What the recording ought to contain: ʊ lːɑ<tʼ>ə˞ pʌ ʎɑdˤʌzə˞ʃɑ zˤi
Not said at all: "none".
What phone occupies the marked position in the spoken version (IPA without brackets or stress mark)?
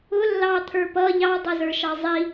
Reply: t̪ʰ